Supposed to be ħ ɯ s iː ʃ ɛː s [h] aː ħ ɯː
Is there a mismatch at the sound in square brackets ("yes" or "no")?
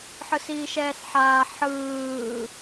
yes